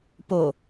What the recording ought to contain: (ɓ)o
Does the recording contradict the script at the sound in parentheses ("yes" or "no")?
yes